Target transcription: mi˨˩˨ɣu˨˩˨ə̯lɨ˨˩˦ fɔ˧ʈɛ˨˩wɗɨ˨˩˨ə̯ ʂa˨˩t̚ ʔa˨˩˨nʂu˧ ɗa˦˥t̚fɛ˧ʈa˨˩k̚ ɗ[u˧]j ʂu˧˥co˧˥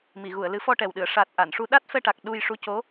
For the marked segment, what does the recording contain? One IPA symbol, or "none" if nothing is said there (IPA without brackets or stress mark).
u˧